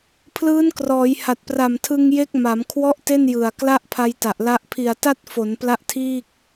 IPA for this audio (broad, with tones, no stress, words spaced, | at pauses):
pʰlɯː˦˥nkrɔː˩˦jha˨˩t̚pra˨˩m tʰɯ˧ŋje˦˥k̚ma˩˦m kʰwɔ˥˩ʔte˥˩njɯ˨˩a̯ kla˥˩ʔpʰa˧jta˨˩ʔla˦˥ʔ pʰi˨˩a̯ta˥˩t̚fo˩˦n pla˦˥ʔtʰiː˥˩k̚